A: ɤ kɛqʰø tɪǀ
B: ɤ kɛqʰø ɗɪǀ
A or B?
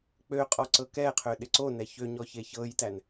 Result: B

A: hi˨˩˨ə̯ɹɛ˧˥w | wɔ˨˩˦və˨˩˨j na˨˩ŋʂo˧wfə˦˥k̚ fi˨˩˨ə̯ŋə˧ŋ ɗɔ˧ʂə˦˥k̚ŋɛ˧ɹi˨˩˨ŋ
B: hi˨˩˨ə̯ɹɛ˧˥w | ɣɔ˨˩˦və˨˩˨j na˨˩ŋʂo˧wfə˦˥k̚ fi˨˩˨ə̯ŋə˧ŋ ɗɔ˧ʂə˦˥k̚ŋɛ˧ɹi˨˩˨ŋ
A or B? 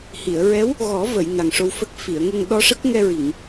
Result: B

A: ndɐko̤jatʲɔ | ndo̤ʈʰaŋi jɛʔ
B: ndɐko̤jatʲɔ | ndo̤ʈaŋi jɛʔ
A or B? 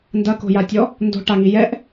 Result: B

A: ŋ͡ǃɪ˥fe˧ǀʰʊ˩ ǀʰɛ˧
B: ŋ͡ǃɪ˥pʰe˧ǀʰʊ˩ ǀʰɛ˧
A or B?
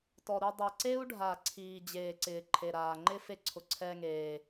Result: A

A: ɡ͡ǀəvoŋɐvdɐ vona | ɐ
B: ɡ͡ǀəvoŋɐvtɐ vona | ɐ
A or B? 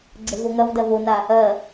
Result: A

